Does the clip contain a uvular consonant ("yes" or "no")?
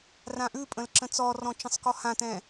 no